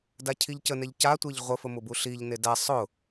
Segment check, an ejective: absent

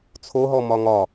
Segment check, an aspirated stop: present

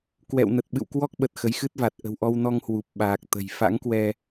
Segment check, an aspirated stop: absent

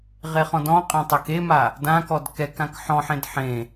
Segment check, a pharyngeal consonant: present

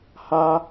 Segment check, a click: absent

